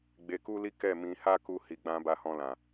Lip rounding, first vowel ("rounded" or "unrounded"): unrounded